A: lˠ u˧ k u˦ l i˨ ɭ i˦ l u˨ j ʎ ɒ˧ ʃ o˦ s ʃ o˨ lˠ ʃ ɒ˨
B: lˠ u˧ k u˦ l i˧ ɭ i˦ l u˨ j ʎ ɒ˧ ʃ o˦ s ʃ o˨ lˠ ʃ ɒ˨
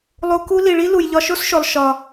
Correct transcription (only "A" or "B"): A